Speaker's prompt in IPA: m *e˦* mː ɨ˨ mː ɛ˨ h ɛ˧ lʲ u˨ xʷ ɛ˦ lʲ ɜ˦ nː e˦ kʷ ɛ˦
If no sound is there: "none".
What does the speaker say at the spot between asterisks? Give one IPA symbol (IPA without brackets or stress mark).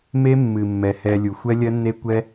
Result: e˦